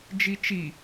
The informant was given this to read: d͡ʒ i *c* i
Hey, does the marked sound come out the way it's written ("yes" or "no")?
no